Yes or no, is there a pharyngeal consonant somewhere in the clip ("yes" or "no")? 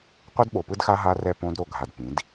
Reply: no